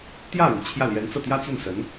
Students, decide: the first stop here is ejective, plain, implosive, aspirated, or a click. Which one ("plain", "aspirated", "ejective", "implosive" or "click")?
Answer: plain